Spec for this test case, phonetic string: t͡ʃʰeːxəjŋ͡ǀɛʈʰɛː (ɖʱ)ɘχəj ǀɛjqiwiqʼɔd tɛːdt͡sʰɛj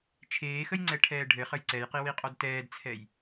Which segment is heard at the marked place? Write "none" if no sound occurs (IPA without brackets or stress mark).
ɖʱ